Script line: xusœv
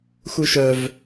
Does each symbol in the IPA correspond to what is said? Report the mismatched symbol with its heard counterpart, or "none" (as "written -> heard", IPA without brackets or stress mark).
s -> ʃ